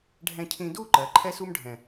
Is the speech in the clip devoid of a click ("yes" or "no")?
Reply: no